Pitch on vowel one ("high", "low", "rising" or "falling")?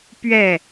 falling